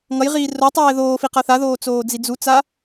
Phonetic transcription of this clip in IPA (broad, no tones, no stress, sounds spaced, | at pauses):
ŋ ʌ j ʁ iː r o tˤ ɛː ð oː f i q ʌ θ a ð oː t͡s oː d͡z i d͡z u t͡s a